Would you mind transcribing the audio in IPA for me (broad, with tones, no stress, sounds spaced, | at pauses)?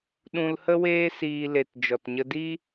ɗ ũ˧ l h ə˦ w eː˦ s iː˧ l e˨ t d͡ʒ ɔ˨ t ɲ ə˧ d i˦